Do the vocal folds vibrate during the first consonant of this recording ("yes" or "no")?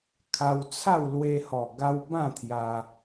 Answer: no